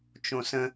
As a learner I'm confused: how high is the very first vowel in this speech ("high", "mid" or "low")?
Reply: mid